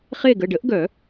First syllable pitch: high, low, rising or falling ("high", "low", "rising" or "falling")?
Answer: falling